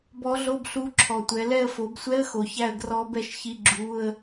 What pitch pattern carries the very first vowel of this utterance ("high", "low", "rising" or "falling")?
rising